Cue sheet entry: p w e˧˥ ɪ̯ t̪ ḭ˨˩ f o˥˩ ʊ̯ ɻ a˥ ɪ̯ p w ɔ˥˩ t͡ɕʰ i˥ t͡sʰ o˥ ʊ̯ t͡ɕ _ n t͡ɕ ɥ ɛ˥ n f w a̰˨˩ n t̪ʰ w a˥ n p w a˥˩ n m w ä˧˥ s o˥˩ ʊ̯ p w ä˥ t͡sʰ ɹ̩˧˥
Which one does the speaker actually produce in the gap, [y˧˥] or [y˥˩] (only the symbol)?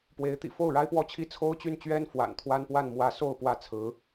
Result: y˥˩